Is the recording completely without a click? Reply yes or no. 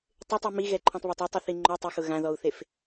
no